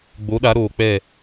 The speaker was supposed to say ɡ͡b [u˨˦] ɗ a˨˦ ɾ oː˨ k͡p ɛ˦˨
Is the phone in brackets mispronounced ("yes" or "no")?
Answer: yes